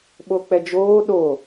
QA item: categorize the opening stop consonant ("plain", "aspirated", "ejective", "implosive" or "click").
implosive